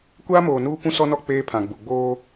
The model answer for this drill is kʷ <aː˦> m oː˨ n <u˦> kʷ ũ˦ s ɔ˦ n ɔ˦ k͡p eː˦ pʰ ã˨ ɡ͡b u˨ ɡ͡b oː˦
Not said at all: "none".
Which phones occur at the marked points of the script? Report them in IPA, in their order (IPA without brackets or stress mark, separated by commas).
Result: aː˦, uː˦